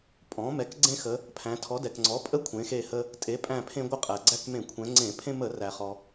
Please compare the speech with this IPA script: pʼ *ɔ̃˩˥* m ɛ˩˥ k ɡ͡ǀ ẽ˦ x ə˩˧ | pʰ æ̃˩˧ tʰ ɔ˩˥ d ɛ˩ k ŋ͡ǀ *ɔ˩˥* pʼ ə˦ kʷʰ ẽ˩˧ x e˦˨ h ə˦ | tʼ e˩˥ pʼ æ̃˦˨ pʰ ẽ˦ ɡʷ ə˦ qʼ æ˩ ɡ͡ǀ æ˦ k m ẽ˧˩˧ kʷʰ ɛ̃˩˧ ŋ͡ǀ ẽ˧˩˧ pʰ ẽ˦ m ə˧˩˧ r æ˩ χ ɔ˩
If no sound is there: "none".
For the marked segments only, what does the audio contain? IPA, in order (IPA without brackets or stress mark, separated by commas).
ɔ̃˩˥, ɔ˩˥